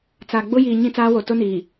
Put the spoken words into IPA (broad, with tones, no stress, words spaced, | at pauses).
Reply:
t͡sa˨ ɡ͡bʊ˦jiː˨ ɲĩ˦t͡saː˦wo˨ tʊ˦niː˨